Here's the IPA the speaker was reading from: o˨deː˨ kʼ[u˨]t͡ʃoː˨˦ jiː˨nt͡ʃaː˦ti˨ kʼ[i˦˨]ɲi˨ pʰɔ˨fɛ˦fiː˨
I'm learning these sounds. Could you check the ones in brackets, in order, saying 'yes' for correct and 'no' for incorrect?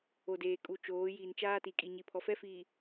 yes, no

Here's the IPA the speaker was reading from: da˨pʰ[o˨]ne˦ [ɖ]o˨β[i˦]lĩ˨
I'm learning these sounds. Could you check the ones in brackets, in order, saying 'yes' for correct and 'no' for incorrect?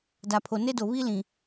yes, no, yes

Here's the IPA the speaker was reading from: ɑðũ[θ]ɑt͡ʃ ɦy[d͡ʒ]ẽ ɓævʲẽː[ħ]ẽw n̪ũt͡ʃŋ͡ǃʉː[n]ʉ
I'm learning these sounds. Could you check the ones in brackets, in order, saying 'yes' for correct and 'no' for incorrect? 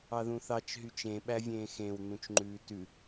yes, no, no, no

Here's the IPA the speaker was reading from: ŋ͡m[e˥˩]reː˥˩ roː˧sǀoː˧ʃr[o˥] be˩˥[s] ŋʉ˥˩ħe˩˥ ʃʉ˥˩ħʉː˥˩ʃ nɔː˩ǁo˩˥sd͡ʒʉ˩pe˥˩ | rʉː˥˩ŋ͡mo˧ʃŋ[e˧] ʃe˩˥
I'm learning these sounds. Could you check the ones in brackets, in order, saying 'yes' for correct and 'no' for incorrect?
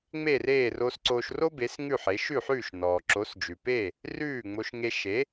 yes, yes, yes, yes

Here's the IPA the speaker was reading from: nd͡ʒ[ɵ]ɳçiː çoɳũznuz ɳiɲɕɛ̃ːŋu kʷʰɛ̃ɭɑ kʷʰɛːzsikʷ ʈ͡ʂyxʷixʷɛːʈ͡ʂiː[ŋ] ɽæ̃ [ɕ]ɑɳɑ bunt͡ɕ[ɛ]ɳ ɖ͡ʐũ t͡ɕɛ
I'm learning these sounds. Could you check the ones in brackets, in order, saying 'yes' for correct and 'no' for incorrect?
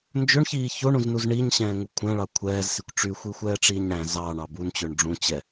yes, no, no, no

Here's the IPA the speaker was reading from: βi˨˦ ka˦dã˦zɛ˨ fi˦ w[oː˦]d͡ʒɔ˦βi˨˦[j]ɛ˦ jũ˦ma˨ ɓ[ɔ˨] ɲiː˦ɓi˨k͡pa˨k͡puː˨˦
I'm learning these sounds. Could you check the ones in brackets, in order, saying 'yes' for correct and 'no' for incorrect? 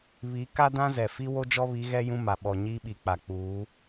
no, no, yes

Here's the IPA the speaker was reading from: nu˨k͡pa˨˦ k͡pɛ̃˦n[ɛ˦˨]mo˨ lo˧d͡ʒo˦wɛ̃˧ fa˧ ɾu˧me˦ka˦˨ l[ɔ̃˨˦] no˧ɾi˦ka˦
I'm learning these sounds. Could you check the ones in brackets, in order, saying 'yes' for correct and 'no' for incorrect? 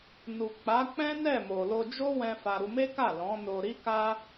yes, yes

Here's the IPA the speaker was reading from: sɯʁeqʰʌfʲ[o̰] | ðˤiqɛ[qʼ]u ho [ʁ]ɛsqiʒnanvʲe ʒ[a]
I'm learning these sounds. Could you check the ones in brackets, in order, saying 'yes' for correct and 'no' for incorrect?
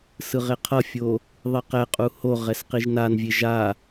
no, yes, yes, yes

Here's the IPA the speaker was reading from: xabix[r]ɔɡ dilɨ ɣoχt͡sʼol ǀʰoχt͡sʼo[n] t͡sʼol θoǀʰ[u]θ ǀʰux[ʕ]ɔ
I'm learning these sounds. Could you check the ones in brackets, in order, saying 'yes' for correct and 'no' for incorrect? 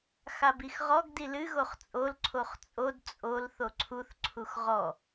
no, no, yes, no

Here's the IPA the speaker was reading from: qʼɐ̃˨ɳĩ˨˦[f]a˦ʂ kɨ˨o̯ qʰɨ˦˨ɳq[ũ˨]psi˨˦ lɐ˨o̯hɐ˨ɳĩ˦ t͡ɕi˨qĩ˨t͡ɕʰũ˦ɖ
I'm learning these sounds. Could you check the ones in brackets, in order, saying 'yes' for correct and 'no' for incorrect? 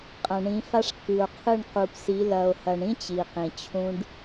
yes, no

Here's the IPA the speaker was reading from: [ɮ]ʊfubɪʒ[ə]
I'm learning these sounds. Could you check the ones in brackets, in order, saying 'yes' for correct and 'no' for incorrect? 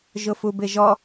no, no

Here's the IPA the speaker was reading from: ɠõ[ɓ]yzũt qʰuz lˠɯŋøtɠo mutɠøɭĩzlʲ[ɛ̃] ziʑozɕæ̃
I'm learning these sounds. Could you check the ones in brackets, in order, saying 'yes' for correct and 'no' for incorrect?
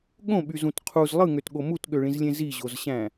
yes, no

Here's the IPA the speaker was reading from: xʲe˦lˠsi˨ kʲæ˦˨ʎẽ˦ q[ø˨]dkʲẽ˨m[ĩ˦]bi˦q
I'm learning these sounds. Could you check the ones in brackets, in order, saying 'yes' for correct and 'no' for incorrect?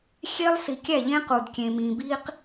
no, no

